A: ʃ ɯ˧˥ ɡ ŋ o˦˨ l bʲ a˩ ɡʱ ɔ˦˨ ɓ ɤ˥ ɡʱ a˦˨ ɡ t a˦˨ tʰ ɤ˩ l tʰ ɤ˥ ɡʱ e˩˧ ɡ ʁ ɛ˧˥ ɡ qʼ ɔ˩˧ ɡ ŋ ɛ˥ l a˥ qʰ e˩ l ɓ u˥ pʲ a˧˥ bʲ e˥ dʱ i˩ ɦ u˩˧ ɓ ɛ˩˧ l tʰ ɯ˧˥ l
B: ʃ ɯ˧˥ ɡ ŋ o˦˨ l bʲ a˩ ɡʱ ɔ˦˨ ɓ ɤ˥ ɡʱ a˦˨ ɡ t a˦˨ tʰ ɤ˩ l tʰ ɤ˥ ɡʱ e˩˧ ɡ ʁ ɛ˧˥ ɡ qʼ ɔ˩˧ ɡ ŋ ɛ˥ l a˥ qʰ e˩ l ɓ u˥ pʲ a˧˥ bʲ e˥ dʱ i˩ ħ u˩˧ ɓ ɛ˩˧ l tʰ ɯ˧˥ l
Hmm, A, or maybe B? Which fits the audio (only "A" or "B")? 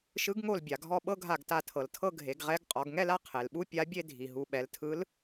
A